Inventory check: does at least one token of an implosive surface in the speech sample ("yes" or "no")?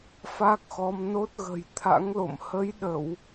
yes